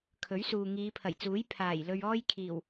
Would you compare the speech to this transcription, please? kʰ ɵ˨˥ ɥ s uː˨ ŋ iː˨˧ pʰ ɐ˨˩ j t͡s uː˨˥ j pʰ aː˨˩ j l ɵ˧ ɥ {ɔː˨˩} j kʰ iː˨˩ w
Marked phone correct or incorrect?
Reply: incorrect